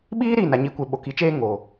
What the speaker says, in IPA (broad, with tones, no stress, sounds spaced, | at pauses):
ɓ iː˦ ɾ iː˦˨ n a˨ ɲ i˨˦ kʷ e˨ ɓ o˨ k i˨˦ t͡ʃ eː˦ ŋ o˨